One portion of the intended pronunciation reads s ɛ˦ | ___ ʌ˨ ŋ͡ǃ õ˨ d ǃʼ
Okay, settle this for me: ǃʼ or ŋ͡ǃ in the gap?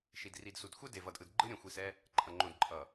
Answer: ǃʼ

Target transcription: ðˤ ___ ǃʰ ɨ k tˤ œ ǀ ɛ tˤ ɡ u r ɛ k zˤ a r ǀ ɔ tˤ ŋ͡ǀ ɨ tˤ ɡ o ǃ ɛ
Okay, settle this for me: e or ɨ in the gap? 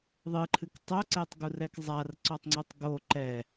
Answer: ɨ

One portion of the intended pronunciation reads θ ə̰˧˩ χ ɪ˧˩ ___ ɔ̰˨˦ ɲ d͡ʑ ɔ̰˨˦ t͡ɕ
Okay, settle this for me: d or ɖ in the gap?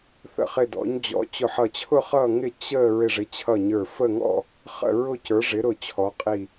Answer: d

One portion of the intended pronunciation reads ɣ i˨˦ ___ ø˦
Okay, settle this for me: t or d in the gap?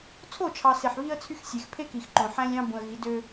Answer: d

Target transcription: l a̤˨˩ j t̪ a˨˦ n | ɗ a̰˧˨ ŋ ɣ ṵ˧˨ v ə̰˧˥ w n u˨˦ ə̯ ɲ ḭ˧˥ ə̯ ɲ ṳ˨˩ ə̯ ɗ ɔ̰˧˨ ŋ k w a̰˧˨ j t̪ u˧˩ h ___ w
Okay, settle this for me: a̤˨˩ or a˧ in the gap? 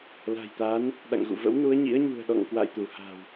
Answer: a̤˨˩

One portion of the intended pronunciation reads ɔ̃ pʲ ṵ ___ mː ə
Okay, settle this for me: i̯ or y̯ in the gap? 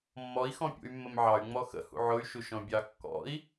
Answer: y̯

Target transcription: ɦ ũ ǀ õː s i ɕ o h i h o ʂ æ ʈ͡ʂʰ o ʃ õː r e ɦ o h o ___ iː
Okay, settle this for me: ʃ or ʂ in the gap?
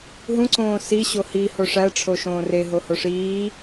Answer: ʂ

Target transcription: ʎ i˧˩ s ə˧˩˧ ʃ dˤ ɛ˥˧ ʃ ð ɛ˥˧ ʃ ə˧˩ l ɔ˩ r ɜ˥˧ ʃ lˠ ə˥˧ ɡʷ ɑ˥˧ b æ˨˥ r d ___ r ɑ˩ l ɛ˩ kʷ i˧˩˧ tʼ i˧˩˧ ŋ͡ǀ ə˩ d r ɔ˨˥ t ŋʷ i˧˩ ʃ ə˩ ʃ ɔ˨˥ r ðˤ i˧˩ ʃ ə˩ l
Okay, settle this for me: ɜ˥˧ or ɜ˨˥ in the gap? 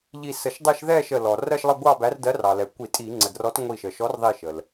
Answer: ɜ˨˥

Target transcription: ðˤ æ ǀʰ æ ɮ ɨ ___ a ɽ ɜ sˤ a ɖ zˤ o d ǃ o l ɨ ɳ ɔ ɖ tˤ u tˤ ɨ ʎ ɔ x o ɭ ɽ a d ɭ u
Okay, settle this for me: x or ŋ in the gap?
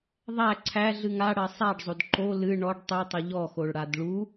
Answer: ŋ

